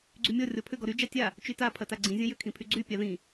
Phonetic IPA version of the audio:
ɡ͡ǀ y mʲ ɔ rʲ ɔ pʰ ʏ ɡ ɔ ɾ y d͡ʒ a tʲ a | t͡ʃ y t a pʰ ɐ t a ɡ͡ǀ ĩ zʲ ɐ̃ j ʏ kʰ ĩ pʰ y ɡ͡ǀ y pʲ a ð ĩ

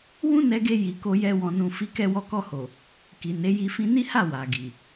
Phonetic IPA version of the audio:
w ũ˦ n ɛ˧ ɡ e˧ j i˨ k o˧ j ɛ˧ w ɔ̃˨ n ũ˨ f i˨˦ k ɛ˧ w ɔ˧ k ɔ˧ h o˨ | k i˨ n e˨˦ j i˧ f ĩ˧ n i˦ h a˦˨ w a˨ ɡ i˨

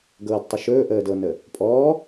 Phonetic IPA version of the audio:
ɡ ɤː d tˤ ɵ ʃ ɵː ʔ əː d ɤ n ə | pʼ ɔː

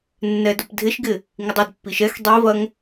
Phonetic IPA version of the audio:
nː ɛ d o p dʱ ɪ ʃ ɡ ɪ | ŋ ɪ dˤ o d pː i ʃ ɛ x dˤ i v ɐ ŋ

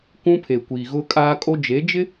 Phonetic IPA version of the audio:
k ũ˦ pʰ e˨ kʷ iː˨ ɣ ʊ˦ kʼ aː˦ kʼ o˦ d͡ʒ e˨˦ d͡ʒ ɪ˦

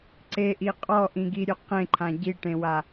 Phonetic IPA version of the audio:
ǀ e ʔ i qʼ ɔ ʔ ĩ ɡ i ɾʲ ø q ẽ ǃʰ ã ɟ i ʈ ẽ w a

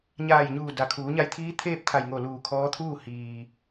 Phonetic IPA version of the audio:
ɲ aː˧˩ j ɲ uː˧˩ d a˩˧ kʰ uː˩˧ ɲ a˧ j t̪ʰ iː˧˥ t̪ʰ eː˥˨ p̚ t̪ʰ a˧˩ j ŋ o˧˩ l uː˧˩ kʰ ɔː˧˥ t̪ʰ uː˥˨ h iː˩

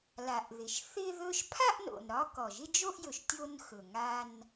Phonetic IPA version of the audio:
l a˩ ʔ ð ɪ˩ ʃ θ ɪ˥˧ ð ɵ˥˧ ʃ pʰ a˥˧ ʔ n o̰˩ n ɾ ɒ˧ k ɔ˩ ʒ ɪ˥˧ d͡ʒ o˥˧ ʔ j ɵ˩ ʃ tʲ o˥˧ n x ɵ˩ ŋ a˥˧ n

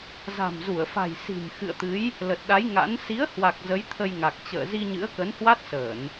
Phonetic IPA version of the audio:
z a̤˨˩ m z u˧˩ ə̯ f a̤˨˩ j s i̤˨˩ m x ɨ̰˧˨ ə̯ t̪ ɨ˨˦ j | l ə˨˩ t̚ ɗ a˨˦ j ŋ a̰˧˥ n s i˨˦ ə̯ h w a˨˩ k̚ z ə˨˦ j t̪ʰ ə˧ j ŋ a˨˩ k̚ t͡ɕ ə̰ː˧˨ z i˧ ɲ ɨ̰˧˥ ə̯ k ə˨˦ n h w a˦˥ t̚ s əː˧˩˨ n

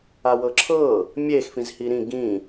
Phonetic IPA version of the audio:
a w ɤ ǁʰ ɤ | mʲ e x f ĩ z h i ɾ ĩ ɡ ĩ

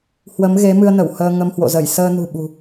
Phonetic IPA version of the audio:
h w ə˨˦ m ɣ e˨˦ m ɨ˧ ə̯ n ə˧˩ w h əː˧ ŋ ə˧ m h w o̰˧˨ z ə˧˩ j s əː˧ n ṳ˨˩ ɓ ṳ˨˩

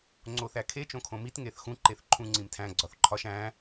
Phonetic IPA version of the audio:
ŋ͡ǀ o θ æ kʰ e t͡ʃ õ kʰ õ m i t ŋ e θ x ũ ǃ e θ ǃʰ ũ ŋ͡ǀ ĩ m tʰ æ̃ ɡ͡ǀ ɒ θ ǃʰ ɒ ʃ æ̃

